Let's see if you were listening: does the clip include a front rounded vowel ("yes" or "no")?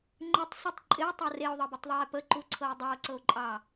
no